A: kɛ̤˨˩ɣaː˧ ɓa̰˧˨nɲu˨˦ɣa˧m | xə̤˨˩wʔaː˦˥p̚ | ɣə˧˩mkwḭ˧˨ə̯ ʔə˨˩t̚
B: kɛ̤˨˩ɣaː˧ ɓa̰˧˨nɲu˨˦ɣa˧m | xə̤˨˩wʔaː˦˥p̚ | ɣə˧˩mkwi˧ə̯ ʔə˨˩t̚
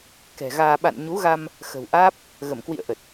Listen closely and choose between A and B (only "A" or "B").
A